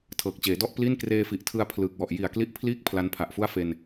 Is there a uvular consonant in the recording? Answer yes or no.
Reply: no